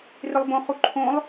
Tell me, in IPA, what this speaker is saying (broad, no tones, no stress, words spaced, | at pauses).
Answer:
rɪlˠbõ χuǃʰõlˠ